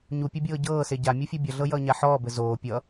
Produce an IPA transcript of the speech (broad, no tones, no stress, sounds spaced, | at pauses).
ɲ u pʲ ɘ bʲ ɤː ɟ ɤː s e ɟ a mʲ u fʲ ɤ bʲ ʌ ɮ ɤ j ʌː ɲ a ħ ɔː b ɘ z oː pʲ ʌ